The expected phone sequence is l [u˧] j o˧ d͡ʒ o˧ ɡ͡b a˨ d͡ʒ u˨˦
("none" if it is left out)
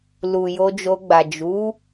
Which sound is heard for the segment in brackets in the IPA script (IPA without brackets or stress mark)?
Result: u˨